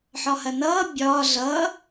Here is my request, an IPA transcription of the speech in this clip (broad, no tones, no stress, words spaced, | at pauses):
ħɒhɐnʌː bʲɒː ɮʌː